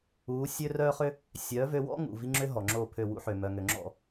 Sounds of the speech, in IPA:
uː˨˦ sʲø˦rœː˦χʏ˦ | sʲœː˨˦vø˧wɔ̰˦ ŋṵ˨ vi˦ŋ͡ǁʏ˦ ɦɔ˨ŋ͡ǁoː˦˨pʰø˦˨ wṵ˦ħø˨ mœ˧ŋø˧ ŋ͡ǁɔ̰˦˨

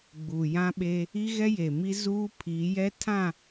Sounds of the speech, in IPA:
ɡ͡buː˨jã˦ ɓe˦ | i˦ɣɛ˦je˨ mi˦ zuː˦pʰiː˨˦jɛ˦ tʰã˦˨

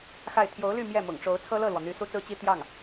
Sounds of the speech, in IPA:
xa˥˩ɪ̯ t̪ʰjo˧˥ʊ̯ly˥˧ mjɛ˥˩mʊ̰˨˩ŋʈ͡ʂo˧˥ʊ̯ t͡sʰɤ˥lɤ˥˩lwɔ˩ n̪y˧˥ su˥t͡sɹ̩˥t͡ɕi˥ t̪jɑ˥˩ŋ

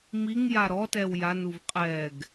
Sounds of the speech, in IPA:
miŋ jaɾɔtɛw januv qʼɛɡ

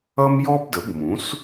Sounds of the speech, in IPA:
ʌ˥mjɔ˥bdə˩˥bmũ˩˥s

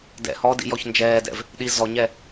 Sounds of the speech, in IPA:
dɛ̰ hɔdḭjɔç nd͡ʒɛːdɛ̰v | ɗi zɔɲɛ

